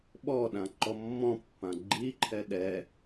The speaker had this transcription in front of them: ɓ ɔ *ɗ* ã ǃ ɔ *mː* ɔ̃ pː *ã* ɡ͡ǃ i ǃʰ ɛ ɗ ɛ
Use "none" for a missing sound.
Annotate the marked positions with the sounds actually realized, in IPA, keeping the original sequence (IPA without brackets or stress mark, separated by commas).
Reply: ɗ, mː, ã